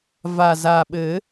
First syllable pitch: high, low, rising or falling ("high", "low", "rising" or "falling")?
low